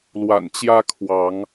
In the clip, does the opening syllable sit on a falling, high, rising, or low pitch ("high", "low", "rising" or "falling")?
low